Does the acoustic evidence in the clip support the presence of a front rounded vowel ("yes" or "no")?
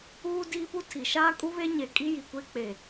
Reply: no